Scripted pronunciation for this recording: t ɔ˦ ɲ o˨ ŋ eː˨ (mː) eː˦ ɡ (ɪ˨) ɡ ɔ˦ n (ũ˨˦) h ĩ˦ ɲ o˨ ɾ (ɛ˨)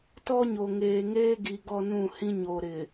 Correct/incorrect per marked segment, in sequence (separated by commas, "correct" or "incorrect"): incorrect, incorrect, incorrect, incorrect